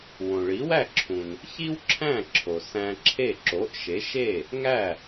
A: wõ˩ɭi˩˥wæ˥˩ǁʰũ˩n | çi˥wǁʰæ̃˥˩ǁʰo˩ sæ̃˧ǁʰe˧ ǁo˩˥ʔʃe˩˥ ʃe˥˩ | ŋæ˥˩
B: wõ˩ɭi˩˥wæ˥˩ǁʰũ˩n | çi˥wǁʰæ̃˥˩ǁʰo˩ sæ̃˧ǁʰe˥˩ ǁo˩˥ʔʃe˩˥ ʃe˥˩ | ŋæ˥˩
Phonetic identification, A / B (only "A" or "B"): B